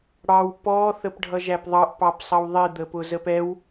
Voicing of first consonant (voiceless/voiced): voiced